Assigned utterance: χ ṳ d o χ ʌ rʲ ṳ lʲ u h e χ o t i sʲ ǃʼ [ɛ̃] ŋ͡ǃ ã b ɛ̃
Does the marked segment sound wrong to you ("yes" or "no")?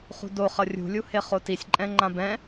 no